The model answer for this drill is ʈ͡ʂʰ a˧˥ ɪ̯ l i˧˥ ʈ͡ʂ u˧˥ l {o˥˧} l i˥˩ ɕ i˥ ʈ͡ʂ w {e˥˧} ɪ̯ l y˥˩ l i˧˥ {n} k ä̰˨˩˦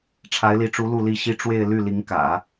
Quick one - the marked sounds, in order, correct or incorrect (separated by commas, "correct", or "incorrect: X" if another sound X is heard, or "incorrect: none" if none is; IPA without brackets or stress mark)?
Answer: incorrect: u˥˧, correct, incorrect: ŋ